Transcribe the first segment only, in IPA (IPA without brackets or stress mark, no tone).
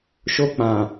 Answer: ʃ